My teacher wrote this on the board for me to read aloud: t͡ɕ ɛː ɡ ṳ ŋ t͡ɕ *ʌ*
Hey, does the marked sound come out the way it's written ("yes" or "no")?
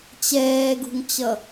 yes